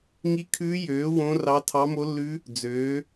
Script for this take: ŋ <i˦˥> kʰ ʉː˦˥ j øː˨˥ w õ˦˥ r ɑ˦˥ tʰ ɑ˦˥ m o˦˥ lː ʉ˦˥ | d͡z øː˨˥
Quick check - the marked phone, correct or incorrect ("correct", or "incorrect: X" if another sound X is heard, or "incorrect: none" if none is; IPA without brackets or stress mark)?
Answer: correct